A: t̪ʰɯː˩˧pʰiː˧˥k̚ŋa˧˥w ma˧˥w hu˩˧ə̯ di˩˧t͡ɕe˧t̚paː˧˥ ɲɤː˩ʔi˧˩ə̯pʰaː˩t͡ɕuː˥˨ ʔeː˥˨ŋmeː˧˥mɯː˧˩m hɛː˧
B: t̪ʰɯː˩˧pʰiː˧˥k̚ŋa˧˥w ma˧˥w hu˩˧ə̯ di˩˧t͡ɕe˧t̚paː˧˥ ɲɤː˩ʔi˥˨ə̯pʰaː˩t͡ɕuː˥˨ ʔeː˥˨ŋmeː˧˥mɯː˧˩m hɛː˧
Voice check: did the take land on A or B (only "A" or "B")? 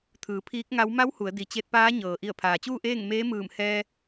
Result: A